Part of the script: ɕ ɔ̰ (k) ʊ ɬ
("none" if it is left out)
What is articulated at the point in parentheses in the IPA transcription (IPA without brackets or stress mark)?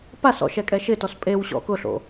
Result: k